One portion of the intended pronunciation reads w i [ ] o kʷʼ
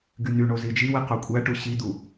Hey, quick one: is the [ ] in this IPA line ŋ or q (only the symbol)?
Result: q